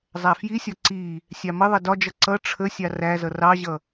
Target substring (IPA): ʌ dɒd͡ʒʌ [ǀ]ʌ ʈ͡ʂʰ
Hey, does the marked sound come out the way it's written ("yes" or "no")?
yes